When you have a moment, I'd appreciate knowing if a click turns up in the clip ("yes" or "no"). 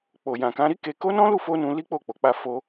no